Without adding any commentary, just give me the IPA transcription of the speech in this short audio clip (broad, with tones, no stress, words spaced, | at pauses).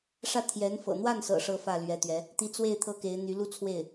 ʂä˥˩ t̪ʰjɛ˧˥nfɤ̰˨˩ n̪wa˥˩nsɤ̰˨˩ ʂɤ˥˧fä˥˩lɥɛ˧˥t̪ɥɛ˧˥ | t̪i˧˥t͡swe˥˩ɪ̯ t̪ʰɤ˥ke˧˥ɪ̯n̪y˧˥ lu˥t͡sʰwe˥˩ɪ̯